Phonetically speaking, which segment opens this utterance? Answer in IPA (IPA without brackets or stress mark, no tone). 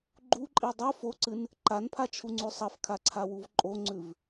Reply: ɡ͡ǃ